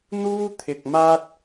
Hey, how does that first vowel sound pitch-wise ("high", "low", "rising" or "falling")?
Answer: high